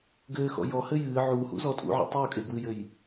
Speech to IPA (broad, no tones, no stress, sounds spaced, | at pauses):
ɡ ɘː x ɔ̰ j ɔ h ɘ j ɨː ʕ uː h ṵ z ɔ tʼ ṵ ʕ a̰ tˤ uː kʼ e ɡ w ɨ j ɘ j